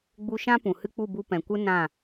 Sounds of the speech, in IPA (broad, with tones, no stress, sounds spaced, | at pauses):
ɡ͡b u˧ ʃ ã˦ p ũ˨ h ɨ˦ k͡p u˦˨ b u˧ p ɛ̃˨ kʷ ɨ˦ n ã˦˨